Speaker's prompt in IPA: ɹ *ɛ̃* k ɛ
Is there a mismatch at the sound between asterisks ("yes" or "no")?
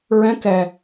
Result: no